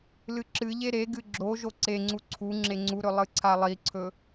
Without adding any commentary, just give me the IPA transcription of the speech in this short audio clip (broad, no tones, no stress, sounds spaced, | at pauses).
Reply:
l ɨ ǁ ɨ ʎ e ɾ e ɡ ɨ ɡ͡ǁ o ʒ o ǀ e ŋ͡ǀ u ǀʰ u ŋ͡ǁ e ŋ͡ǀ u ɾ ɵ lˠ ɨ ǀʰ a lˠ i ǀʰ ɵ